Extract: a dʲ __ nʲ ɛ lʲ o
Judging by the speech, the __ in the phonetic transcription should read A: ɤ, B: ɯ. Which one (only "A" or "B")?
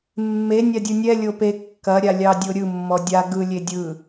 B